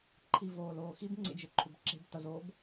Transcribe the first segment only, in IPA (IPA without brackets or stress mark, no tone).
ǃʰ